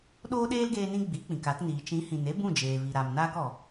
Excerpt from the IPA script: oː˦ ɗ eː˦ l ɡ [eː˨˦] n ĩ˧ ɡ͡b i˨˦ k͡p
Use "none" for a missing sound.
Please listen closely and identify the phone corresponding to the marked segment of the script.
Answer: eː˧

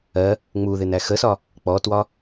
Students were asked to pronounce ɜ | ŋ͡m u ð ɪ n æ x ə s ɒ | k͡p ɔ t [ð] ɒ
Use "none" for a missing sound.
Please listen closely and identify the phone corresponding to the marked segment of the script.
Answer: w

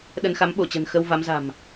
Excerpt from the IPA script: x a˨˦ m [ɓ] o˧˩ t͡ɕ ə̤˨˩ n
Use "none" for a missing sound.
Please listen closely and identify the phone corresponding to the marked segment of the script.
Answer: ɓ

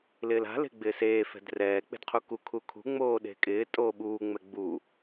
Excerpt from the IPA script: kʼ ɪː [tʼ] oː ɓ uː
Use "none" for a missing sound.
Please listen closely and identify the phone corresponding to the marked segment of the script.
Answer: tʼ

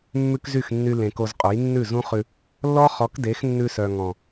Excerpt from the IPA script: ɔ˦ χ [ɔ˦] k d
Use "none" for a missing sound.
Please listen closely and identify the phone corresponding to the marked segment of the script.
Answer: ɔ˨˦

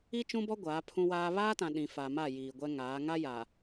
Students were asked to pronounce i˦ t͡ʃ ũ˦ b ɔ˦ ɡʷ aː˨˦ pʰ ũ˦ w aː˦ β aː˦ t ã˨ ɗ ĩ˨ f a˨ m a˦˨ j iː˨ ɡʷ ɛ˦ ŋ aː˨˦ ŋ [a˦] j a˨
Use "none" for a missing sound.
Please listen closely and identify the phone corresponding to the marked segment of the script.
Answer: a˦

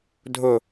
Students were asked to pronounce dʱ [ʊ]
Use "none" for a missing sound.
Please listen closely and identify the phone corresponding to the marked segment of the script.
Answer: ʊ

